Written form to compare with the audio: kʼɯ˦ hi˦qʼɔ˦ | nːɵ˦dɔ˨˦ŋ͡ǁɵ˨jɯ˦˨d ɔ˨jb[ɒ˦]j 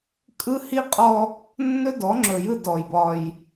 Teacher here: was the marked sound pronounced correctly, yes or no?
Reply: yes